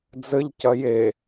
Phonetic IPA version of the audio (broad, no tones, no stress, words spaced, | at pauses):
d͡zɘʎcɐ je